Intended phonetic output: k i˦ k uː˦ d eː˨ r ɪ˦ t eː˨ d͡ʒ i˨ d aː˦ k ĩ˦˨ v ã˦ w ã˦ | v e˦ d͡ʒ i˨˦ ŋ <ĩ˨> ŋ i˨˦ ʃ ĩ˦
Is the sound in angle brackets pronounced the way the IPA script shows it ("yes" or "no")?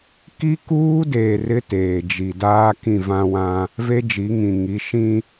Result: yes